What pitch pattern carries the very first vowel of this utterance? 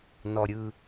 low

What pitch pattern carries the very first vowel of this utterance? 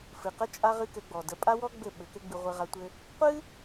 low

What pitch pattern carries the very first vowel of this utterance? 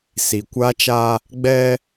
low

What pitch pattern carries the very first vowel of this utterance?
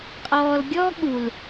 low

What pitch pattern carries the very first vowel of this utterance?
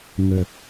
low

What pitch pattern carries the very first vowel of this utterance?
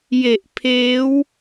low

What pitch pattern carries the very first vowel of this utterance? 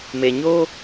low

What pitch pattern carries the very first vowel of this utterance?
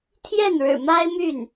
falling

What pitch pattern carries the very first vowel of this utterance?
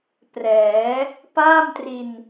rising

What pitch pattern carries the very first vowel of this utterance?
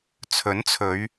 rising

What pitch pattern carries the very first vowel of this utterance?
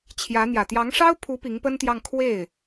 rising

